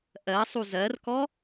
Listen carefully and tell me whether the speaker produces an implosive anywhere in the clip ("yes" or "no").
no